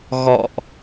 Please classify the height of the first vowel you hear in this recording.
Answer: mid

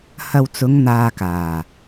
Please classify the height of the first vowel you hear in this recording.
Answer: low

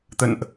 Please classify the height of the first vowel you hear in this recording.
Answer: mid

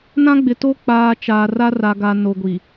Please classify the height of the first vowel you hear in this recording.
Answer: low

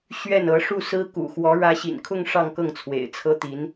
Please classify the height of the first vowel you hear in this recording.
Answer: mid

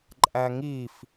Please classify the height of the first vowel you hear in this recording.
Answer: low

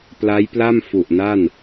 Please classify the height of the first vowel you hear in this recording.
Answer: low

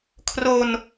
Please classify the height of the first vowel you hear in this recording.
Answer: mid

